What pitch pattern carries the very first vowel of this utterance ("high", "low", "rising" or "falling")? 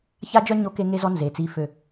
high